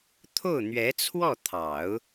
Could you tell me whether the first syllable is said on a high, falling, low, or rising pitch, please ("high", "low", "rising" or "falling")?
falling